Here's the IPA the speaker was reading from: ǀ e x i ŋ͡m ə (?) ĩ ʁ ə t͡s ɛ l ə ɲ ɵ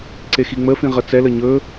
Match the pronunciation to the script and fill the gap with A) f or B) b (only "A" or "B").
A